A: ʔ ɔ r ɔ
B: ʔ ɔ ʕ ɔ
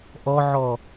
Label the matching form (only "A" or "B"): B